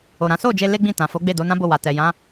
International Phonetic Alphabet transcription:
o˨ɾã˨˦ so˦˨d͡ʒe˧ le˦ɡ͡bĩ˦˨ tã˨fo˨˦ɡ͡be˦˨ do˨˦nã˦bo˦˨ wa˨tɛ˨jã˨˦

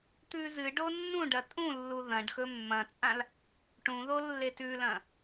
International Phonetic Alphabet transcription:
t̪ʉzɨɖo nːũɖɐ tʼũlːu ðɐ̃ɖxɵ mːɐ̃t͡sʼãl | ʈũ ðolːetʉlɐ̃

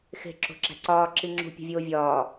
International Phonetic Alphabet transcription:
xe̤ ǁo̤ǁæ̤ǀɒː ǁiŋ͡ǁṳ pʲo̤vʲoːvʲɒː

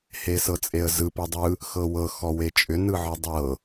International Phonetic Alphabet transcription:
hesɤt͡sʼeə̯zɯ pɯdˤɯ | xɤwɤ xɔwet͡ʃʼʏ nɯʕɯdˤɤ

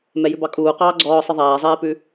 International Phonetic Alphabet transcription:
mɛjʉbɑkʼuː qɑːɡ͡ǀɔːsˤɨ ðˤæːzˤeːpʉ

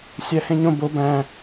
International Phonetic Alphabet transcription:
sʲæhẽɲõ bo bæ̃

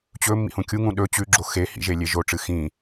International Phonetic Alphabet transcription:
t͡ɕɵ mːḭhũkʲuŋũ ɗɵ t͡ɕʉɡ͡ǁo xe hḭ ʒelʲeʒoʈ͡ʂɨ xĩ

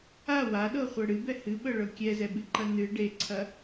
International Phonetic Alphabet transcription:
a waɗɤχʷɤ ɽɨbɛ hɨɓɤɭɤ kʲɛzɛɓɨǃɐ nɨ ɖeǀʰɐ

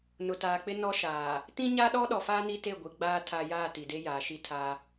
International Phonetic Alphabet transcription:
nʊ˨taː˨k͡pɪ˦ nɔ˦ʃaː˨ | tĩ˦ɲa˦ɗɔ˦ ɗɔ˨faː˦ ni˦te˦˨ɡʷi˨ɡ͡baː˦ tʰa˦ jaː˦˨ ti˨de˦jaː˨ʃi˦ tʰa˦

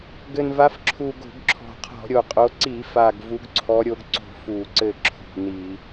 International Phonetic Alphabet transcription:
ɡɘ˨˩nva˨˦f ǁʰu˨˩ ɡo̤˧˩˧ɡǁʰɔ̤˨˩qʰɔ̤˧˩˧ ɾʲo˨˩qʼo˨˦ ǀi˧˩˧fa˨˩ɡ vu˨˦ɡǀʰɔ˨˦ɾʲo˨˦ɡ ǀo̤˥˩fu˧˩˧ǀɘ˥˩ ǁʰṳ˨˩ni˧˩˧

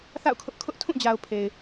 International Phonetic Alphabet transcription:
θa̰˦˨ʊ̯kʰʊ˦ʔ kʰʊ˦ʔ tʰũ˦˨d͡ʑa˨ʊ̯ pʰe˨ɪ̯

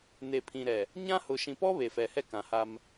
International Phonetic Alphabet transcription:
ne˨pʰĩ˨ɾɛ˨ | ɲã˦hʊ˨ ʃĩ˨pɔ˦ βe˨fɛ˨hɛ˦ kã˨ha˦m

